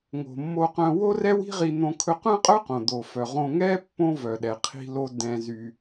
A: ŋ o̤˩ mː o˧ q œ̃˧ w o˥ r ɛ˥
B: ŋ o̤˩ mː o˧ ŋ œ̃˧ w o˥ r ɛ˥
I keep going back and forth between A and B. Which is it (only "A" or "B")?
A